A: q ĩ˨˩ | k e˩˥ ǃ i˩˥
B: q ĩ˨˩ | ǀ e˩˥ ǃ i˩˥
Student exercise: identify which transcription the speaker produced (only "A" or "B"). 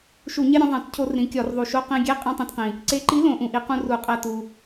B